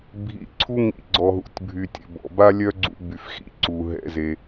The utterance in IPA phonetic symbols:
bʱḭ˨ ǀʰu˦ŋḭ˧ɡ͡ǀɔ˨ɦṵ˨tʲ bʱy˨tʲɛ̰˨ bɔ̰˨ ba˦lʲœ˦ɡ͡ǀṵ˧ by˨fxḭ˦ ǀu˨ɦɛ̰˧ ze˧

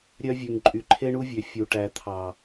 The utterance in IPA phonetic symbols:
ɾʲœ˦vʲʉ˨ŋ ǃʼy˨ǃʰe˦ɳu˦vʲø˨ fʲu˨ʈæ˨ t̪ʰɑ˨

